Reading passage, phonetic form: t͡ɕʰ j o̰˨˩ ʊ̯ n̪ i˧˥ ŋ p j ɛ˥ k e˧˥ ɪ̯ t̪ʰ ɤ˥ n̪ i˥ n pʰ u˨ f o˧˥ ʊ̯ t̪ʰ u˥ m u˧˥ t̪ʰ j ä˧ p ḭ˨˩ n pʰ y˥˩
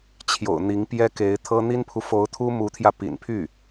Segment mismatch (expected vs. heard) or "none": none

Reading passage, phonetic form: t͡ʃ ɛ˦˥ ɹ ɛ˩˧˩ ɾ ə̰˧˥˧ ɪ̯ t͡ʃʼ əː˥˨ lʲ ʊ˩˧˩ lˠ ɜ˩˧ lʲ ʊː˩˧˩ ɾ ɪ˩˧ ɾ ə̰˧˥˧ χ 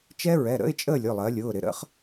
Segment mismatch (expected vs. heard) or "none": none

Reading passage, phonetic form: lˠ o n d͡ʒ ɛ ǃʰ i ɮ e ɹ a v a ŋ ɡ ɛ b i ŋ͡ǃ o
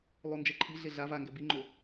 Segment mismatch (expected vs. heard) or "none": ɹ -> ɮ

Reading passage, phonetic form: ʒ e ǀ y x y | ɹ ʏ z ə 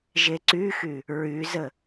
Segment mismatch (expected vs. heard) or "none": ʏ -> y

